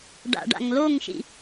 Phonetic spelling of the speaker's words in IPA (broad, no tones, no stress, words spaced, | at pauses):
ɖa̰ɖa̰ŋloŋʃḭ